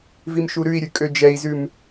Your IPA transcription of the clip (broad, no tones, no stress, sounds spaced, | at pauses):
v i m ʃ u ɾ ʉ i̯ ɾʲ ʉ kʼ ø d͡ʒ ɛ i̯ z ʉ m